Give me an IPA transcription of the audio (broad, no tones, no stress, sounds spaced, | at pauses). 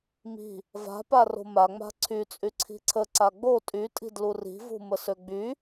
m i̤ | v a̤ p a r o̤ m a ŋ͡m a̤ ǀʰ y t͡sʼ y ǀʰ i̤ ǀʰ ə ǀ a ɡ͡b o tʼ y tʼ i̤ d l u r i̤ v ṳ m ə s ø ɡ͡b y